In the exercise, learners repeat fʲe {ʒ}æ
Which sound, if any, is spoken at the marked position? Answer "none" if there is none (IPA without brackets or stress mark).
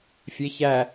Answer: ç